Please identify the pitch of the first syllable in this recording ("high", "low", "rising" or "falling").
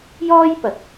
high